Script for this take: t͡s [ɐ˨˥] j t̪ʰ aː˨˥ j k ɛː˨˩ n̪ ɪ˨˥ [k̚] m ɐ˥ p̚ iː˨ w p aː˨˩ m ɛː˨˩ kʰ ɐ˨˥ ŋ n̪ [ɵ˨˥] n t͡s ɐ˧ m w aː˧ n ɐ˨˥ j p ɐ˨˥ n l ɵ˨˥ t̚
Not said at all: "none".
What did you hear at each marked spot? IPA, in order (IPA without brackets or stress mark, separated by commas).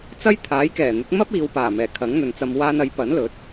ɐ˥, k̚, ɵ˨